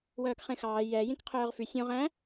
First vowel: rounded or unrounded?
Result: rounded